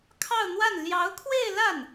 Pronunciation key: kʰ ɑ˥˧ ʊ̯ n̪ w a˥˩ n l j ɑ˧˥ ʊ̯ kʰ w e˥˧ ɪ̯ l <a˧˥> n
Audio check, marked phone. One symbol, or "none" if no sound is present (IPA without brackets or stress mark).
a˥˩